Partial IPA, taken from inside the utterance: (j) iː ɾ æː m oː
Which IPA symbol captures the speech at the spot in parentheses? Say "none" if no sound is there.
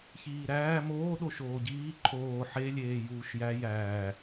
ç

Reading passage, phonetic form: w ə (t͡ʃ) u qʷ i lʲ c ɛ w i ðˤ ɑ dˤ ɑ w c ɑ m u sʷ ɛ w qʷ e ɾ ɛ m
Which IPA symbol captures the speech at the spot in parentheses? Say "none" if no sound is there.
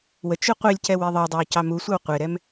t͡ʃ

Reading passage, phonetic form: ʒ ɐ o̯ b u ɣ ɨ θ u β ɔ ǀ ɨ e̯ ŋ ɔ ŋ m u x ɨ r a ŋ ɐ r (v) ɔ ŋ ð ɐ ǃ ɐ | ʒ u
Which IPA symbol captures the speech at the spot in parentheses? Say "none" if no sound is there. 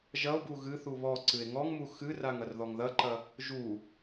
ð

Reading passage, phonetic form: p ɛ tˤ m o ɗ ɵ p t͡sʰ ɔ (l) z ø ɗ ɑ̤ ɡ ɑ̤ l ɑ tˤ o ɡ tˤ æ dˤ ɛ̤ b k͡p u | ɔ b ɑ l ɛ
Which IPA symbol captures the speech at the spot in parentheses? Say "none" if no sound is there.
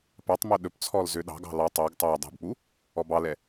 l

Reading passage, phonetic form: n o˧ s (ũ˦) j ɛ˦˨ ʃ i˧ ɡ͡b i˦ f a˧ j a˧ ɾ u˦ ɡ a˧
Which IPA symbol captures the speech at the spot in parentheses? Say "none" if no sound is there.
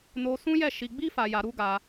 ũ˦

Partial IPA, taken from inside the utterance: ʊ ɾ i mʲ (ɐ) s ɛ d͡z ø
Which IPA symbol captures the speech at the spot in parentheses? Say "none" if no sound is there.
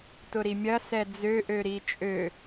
ɐ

